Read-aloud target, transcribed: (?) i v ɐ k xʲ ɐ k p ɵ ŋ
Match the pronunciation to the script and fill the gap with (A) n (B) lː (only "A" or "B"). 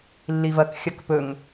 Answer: B